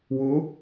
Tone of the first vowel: rising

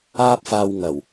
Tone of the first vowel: high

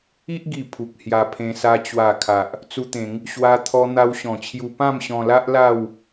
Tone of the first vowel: high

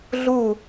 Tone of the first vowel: falling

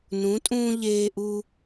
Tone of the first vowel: rising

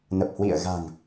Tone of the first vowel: low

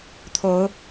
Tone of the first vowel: rising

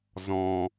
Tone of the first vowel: low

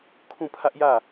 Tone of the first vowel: falling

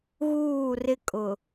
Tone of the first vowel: falling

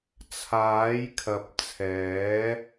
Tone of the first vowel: rising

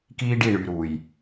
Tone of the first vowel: high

